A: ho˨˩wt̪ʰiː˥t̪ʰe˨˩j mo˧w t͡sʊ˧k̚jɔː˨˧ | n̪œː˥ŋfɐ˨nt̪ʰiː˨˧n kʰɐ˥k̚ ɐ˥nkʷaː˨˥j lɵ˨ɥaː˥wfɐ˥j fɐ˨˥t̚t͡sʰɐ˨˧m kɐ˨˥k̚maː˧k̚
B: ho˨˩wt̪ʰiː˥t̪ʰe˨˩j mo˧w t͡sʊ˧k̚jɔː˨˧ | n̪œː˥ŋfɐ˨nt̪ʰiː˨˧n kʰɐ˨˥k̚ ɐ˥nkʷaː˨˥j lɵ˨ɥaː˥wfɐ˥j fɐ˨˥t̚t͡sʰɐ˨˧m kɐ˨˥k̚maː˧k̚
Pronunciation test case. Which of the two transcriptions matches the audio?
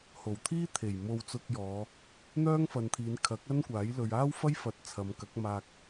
B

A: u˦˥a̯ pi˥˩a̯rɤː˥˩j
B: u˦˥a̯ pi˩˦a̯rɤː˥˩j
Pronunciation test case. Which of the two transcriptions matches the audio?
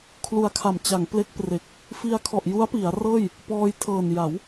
B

